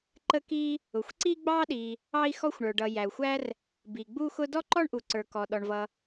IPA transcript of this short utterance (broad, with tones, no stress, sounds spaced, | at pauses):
ǃ ə˥ k i˥ | ʊ˩ xʷ ǀ i˥ ɡ͡b ɑ˥ ɗ i˩ | ɑ˥ i̯ x ɔ˥ xʷ ɳ ə˞˩ ɖ ʌ˩ j æ˩ u̯ xʷ æ˥ r | b i˩ ɡ͡b u˥ x ʊ˥ d ɔ˥ ǃ ɔ˥ ɳ ʔ u˩ ǀ ə˞˩ k ɔ˩ ɗ ɔ˩ ɳ v ʌ˩